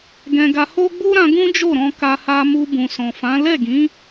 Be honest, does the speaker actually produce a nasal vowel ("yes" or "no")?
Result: yes